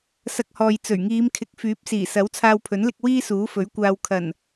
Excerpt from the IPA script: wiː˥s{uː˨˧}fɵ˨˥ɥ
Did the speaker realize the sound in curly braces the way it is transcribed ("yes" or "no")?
no